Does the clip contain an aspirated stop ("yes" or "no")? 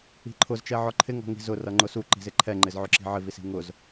yes